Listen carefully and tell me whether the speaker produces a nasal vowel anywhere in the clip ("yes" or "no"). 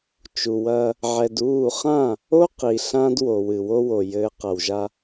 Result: yes